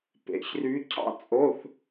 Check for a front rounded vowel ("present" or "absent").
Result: present